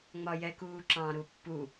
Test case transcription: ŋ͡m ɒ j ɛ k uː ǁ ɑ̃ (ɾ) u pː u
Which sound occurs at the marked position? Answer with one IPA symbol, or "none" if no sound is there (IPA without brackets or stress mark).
ɾ